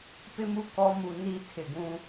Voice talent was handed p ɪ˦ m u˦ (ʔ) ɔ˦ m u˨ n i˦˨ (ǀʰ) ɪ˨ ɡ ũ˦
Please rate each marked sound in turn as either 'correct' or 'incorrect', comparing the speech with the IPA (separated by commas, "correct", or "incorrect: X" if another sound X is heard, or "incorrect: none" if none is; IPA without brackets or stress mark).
incorrect: k, incorrect: tʰ